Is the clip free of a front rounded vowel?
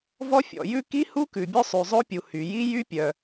no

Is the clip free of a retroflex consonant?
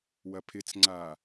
yes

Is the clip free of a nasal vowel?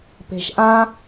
no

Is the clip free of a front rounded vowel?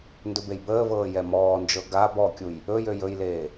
no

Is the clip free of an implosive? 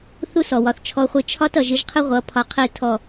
yes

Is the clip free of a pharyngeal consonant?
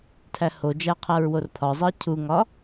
yes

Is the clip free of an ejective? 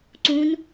yes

